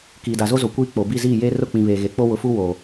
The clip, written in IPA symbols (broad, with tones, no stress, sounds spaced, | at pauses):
k iː˨ d a˨ z o˦ z o˨ kʷ iː˦ k͡p o˨ b i˦˨ z iː˦˨ j e˦ r ʊ˦˨ k͡p ĩ˨ β eː˨ ɣ e˨ k͡p o˦ w ʊ˨ f u˦ w o˨